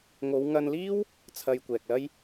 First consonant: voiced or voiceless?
voiced